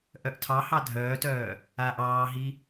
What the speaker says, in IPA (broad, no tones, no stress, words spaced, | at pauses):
ʔœʔtʰɑhɑ dʱœːtœː | aːʔɑːɦi